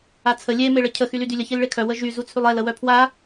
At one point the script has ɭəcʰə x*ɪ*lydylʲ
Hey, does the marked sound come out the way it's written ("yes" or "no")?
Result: no